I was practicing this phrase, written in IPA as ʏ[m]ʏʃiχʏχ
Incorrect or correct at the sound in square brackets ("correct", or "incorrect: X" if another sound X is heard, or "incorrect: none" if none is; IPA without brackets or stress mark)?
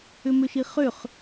correct